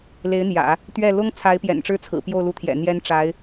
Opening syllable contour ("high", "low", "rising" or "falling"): rising